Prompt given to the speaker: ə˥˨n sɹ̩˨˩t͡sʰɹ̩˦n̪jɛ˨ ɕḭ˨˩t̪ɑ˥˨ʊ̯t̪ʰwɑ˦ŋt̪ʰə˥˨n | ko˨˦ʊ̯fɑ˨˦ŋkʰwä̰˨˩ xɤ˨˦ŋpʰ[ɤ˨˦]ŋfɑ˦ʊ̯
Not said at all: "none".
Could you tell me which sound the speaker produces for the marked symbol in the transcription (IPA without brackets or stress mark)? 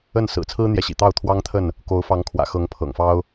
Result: ɤ̰˨˩